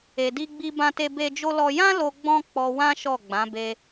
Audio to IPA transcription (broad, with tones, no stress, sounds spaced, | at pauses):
e˧ d i˦ ɡ͡b i˦ b ã˦ t e˦ b e˦ d͡ʒ o˦ l ɔ˦ j ã˦ l o˧ ɡ͡b ɔ̃˦ k͡p ɔ˧ w ã˦ ʃ ɔ˦˨ ɡ͡b ã˨˦ b e˧